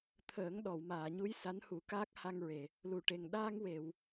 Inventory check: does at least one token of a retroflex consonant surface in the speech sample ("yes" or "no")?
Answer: yes